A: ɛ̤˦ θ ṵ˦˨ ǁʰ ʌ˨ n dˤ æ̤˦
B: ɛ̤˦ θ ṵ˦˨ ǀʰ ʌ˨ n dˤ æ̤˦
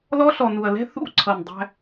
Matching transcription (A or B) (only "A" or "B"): B